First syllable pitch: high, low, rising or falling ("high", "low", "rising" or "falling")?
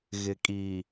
low